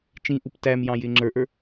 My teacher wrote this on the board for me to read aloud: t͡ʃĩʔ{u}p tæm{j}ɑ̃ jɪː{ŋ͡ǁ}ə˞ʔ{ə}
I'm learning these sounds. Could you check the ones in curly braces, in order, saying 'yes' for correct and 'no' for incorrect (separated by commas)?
yes, yes, yes, no